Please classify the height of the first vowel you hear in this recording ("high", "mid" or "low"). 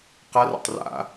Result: low